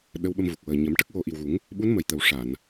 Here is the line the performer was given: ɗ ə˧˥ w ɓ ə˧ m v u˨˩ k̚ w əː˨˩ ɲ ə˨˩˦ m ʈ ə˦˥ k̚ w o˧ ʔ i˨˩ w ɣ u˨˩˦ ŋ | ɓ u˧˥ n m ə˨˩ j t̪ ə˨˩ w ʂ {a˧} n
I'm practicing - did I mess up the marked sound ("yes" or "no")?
yes